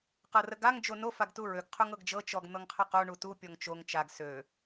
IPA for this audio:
q ɤ r ə ɡ a ŋ d͡ʒ o n o f a ɡ t u ɹ ø ɡ qʰ u ŋ ɤ ɡ d͡ʒ ɤ t͡ʃ ɔ ɡ n̪ ɤ ŋ qʰ ə q o ɳ u t u pʲ ɔ ŋ t͡ʃ o ŋ t͡ʃ a ɡ s ø

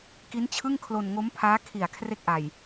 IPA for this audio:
k i˦˥ n t͡ɕʰ ɯ˥˩ ŋ kʰ l o˧ n ŋ o˦˥ m pʰ aː˦˥ kʰ i˨˩ a̯ kʰ r e˥˩ k̚ ʔ a˨˩ j

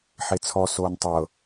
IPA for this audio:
ħ e t͡sʰ ɔ s oː n tˤ ɤ

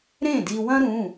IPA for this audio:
ɾ ẽ˥˩ d i˧ w ɐ̃˥ ɾ ũ˩˧˩

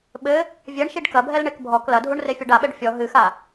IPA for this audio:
ɓ ɘ | vʲ ɛ ɳ ʃ i ɖ k ɐ bʱ ɛ l ɳ e k bʱ ɔ k l ɐ dʱ u ɳ r e fʲ ɔ ɖ a ɓ ɛ ɖ fʲ ɔ ɦ ɨ x a

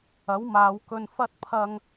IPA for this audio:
ɐ˨˥ w m aː˨˧ w k ɵ˧ n f ɐ˥ t̚ pʰ ɐ˥ ŋ

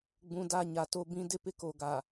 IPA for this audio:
ɡ͡b ũ˨ d a˦˨ ɲ a˨ t o˦ b ĩ˦ d ɪ˦ p ɪ˦ k o˨ ɡ a˨

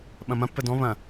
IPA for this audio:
ɓ ɐ̃ m ɐ̃ pː ə d ɔ̃ β ɐ̃

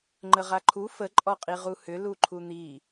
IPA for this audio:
ŋ͡ǃ ə ʁ a ǃʰ u f ə ǃʼ ɔ qʼ i ʁ u h ʏ l u ǃʰ u n̪ i

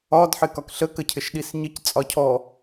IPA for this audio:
ɒ d ħ ɪ k ɒ k ɬ ə k ə cʰ ɪ ʃ ɗ i s ɲ ɪ c t͡sʼ ɒ cʰ ɔ

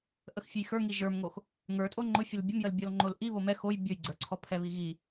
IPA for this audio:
ʔ ə x fʲ ʊ j x ə˞ ŋ i ʒ ə˞ m ŋ o x | ŋ ə˞ tʼ o ŋ͡ǃ ʊ fʲ ʊ l bʲ ə m j ə l bʲ ɔ l ŋ͡ǃ o l ʔ i β o m ɛ x o j bʲ o j ɡ͡ǀ ə˞ ǀʰ ɔ pʰ ɛ β i ɣ i

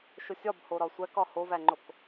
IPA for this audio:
ʃ o sʲ ɒ b h o ɾ ɒ sʷ æ k ɒ h o v æ ŋ͡ǃ o k

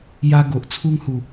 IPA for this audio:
j a˦ ɡ o˨ ʔ t͡sʰ u˦ ŋ h u˨˩

